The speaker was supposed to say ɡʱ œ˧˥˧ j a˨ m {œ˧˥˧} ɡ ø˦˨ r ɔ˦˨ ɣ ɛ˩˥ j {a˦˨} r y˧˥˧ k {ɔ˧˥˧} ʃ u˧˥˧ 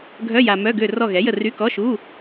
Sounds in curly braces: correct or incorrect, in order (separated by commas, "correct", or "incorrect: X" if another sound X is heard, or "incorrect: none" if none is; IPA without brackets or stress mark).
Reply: correct, incorrect: ə˦˨, correct